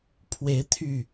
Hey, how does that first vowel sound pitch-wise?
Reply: rising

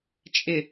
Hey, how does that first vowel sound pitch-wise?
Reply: low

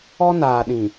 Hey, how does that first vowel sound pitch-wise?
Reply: high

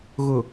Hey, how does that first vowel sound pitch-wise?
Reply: low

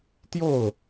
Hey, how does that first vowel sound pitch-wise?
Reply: falling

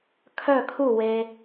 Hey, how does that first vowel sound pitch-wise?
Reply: falling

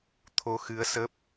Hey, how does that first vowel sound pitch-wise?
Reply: rising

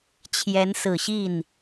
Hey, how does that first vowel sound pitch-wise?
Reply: rising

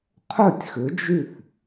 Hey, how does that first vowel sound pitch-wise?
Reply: falling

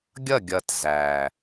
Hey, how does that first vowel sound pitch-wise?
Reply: falling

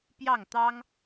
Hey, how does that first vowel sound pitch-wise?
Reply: falling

